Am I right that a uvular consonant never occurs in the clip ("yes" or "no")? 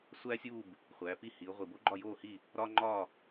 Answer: no